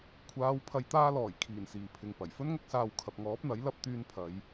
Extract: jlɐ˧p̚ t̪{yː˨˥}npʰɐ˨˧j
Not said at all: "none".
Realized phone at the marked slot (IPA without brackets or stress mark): yː˧